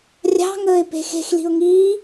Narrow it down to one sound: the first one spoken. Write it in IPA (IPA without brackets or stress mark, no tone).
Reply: rʲ